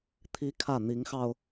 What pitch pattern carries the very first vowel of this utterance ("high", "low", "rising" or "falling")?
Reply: high